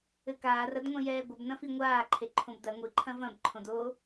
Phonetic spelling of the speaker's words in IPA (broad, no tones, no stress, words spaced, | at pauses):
ɘkaːr ɐdŋʷẽjɛːɡʷɐb nɐ̃fiŋʷaː ǃʰeǃʰõbdɐ ŋʷi ǃʰɐ̃vɐ̃b ǃʰõdo